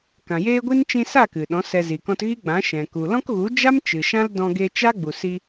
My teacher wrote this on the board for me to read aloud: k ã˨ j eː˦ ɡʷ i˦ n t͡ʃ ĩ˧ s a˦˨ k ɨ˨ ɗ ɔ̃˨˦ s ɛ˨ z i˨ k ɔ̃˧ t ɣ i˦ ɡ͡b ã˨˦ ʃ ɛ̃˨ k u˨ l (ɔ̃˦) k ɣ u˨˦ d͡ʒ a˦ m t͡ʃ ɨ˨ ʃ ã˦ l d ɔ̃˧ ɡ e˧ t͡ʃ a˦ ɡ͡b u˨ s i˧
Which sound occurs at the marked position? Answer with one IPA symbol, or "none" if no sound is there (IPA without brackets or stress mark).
ɔ̃˦